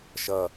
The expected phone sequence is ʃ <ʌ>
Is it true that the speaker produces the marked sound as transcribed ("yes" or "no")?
yes